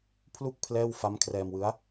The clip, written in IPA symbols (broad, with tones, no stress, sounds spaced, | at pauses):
pʰ l u˥˩ k̚ pʰ l ɛː˥˩ w f a˦˥ m kʰ r ɛː˧ m w ɯ˦˥ a̯